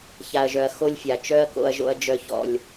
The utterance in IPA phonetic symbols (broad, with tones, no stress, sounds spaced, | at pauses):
ç a˨ ɐ̯ ʒ œ˨ ɐ̯ x o˦ lʲ fʲ a˨ t͡ʃ œ˦ ɐ̯ k o̰˨ ɐ̯ ʒ o̰˨ ɐ̯ d͡ʒ œ˨ ç ɔ̰˨ lʲ